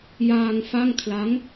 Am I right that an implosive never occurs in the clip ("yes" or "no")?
yes